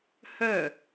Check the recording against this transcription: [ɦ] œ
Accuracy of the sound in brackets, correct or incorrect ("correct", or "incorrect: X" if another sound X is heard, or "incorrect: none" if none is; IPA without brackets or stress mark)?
incorrect: h